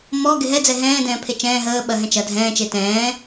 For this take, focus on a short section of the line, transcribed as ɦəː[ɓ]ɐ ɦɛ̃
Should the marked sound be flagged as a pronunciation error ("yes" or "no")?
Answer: no